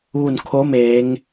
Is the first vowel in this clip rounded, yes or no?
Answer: yes